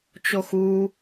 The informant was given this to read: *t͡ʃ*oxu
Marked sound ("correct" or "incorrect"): correct